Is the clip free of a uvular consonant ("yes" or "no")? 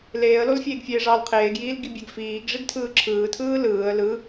no